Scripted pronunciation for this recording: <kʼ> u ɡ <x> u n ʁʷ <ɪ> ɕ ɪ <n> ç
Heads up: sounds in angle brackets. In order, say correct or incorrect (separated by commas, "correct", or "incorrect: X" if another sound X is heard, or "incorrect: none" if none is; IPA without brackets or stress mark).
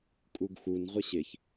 correct, correct, correct, incorrect: none